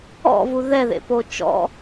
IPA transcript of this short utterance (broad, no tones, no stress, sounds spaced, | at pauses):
ɔ̰ v u ð ɛ ð ḛ p o t͡ʃ ɔ̰